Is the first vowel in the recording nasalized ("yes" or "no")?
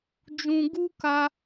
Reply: yes